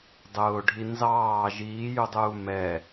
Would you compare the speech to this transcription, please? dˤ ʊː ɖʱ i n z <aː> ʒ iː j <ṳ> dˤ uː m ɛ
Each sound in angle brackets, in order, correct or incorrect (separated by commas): incorrect, incorrect